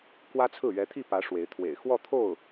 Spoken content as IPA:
k w ä˥ t͡sʰ ɹ̩˥˩ ɥ ɛ˧˥ t̪ʰ i˥˩ p ä˧˥ ʂ w e˧˥ ɪ̯ t̪ʰ w ḛ˨˩ ɪ̯ x w ɔ˥˧ t̪ʰ o˥˩ ʊ̯

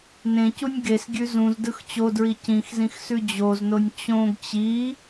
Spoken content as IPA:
n ẽ c u nʲ ɡ e s ɡʲ ʉ z ũ z d ɯ x t͡ɕ o d ɹ i c ĩ x z ĩ x s ʉ d͡ʑ o z n o nʲ t͡ɕ õ ɡ t͡ɕ i

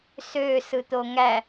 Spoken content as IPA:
s ø s ɯ t̪ o ŋ æ

